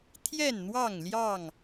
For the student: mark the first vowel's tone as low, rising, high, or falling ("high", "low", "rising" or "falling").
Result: falling